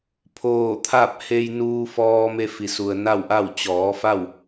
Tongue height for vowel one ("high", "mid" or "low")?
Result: mid